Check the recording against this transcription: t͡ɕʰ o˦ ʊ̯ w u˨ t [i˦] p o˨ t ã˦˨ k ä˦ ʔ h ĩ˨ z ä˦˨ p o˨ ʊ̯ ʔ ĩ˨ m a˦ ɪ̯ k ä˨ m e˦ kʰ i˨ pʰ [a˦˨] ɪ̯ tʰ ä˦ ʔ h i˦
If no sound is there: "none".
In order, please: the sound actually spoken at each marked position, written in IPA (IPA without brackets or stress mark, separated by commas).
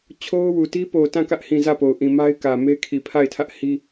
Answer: i˦, a˦˨